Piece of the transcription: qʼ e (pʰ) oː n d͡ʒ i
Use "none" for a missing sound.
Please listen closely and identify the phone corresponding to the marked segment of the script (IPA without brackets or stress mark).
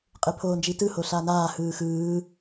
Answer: pʰ